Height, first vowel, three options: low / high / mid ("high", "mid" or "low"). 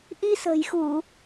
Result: high